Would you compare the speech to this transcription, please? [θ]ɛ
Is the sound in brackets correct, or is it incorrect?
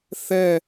correct